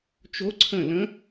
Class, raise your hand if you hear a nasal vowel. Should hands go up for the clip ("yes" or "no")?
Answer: yes